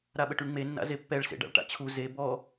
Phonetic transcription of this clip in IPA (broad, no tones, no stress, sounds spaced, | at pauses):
ɾ a ɓ ə ʈ y ɳ ŋ͡m e nː a̰ z e pː ɛ ɭ s ḛ ɖ a̰ ɭ ʈ a̰ t͡ɕʰ u z e b ɔ